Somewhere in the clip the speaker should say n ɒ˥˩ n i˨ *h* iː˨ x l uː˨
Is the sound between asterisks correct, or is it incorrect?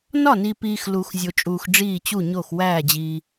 incorrect